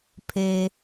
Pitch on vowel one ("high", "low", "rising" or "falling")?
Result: low